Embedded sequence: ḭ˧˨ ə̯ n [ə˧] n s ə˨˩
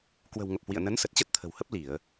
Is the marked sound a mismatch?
yes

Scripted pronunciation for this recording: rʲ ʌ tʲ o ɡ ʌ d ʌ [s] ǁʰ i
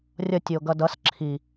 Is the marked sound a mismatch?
no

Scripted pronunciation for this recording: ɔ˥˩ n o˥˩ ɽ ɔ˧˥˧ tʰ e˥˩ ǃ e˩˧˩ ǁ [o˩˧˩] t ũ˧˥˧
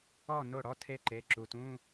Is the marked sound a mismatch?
yes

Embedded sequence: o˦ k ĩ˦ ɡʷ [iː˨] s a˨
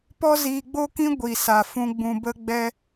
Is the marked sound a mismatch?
yes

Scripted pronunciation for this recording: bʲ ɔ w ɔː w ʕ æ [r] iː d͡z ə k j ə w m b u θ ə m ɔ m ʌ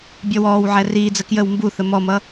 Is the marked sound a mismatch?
no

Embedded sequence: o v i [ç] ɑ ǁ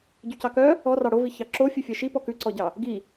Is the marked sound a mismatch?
no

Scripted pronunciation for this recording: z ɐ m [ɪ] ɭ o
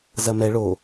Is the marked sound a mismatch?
yes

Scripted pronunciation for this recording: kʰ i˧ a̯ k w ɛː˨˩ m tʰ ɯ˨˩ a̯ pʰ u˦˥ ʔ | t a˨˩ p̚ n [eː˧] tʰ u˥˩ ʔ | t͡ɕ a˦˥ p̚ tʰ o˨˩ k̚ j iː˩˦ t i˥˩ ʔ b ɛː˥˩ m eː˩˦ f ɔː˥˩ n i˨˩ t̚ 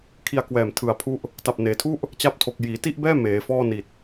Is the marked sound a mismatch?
yes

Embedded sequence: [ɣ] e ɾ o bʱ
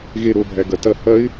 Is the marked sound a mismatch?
no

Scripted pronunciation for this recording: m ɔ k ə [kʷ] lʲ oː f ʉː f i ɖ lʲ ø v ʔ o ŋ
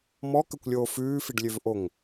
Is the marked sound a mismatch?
no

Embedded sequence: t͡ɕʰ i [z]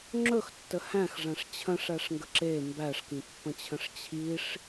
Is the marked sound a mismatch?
yes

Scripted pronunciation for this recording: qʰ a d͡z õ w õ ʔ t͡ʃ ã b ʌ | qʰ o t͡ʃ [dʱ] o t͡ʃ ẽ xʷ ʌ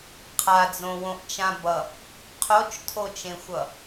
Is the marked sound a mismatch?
yes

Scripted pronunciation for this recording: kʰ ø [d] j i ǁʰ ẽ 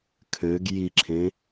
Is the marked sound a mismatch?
yes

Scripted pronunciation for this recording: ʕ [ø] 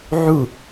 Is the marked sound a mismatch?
yes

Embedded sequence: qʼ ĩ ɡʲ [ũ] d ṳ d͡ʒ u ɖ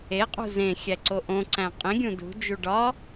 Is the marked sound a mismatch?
no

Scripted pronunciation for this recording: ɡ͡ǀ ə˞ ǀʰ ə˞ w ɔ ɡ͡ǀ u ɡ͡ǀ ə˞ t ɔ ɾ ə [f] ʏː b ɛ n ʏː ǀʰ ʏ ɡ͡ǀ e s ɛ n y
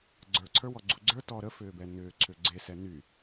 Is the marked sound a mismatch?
no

